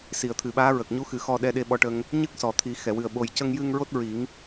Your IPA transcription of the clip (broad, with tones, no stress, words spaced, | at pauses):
si˨˩˨ə̯t̪ʰɨ˨˩˨ɓaː˧˥ ɹə˨˩k̚ɲu˧˥ xɨ˨˩˦xɔ˧ɗɛ˧ɗe˧ ɓɔ˧ʈə˧ŋ | ɲɨ˦˥k̚ sɔ˨˩t̪ʰi˨˩˦ xɛ˨˩˨wɨ˨˩ə̯ ɓo˨˩jcə˧ŋjɨ˧ŋ ɹo˦˥t̚ɹi˨˩˦ŋ